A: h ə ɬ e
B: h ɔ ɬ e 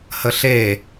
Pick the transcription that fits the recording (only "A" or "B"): A